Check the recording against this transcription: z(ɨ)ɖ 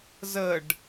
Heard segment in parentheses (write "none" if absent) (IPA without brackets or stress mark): ə